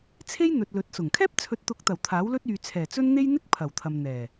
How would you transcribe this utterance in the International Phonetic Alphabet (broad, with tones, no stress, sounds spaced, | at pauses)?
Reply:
t͡sʰ e˥ j n̪ ɵ˨ t̚ l ɵ˨˥ t̚ s ʊ˨˩ ŋ kʰ ɛː˥ p̚ t͡sʰ ɵ˨˥ t̚ t̪ ʊ˨˥ k̚ t̪ ɐ˨˩ w t̪ʰ aː˨˥ w l ɵ˥ t̚ yː˨ t͡sʰ ɛː˨˩ t͡s ɵ˥ n n̪ e˥ j n̪ ɪ˥ k̚ pʰ ɐ˨˩ w t̪ʰ ɐ˨ m n̪ ɛː˨˩